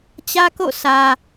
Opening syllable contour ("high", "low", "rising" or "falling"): high